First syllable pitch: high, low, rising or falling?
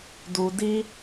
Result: low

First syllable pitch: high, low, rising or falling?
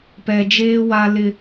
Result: high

